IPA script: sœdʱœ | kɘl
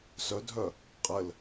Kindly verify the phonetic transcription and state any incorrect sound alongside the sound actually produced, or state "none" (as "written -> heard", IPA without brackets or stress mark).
k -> qʼ